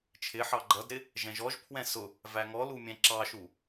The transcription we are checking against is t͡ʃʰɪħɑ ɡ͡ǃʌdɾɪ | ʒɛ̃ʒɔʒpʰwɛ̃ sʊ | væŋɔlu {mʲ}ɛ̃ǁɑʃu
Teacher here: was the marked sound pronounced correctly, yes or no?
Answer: yes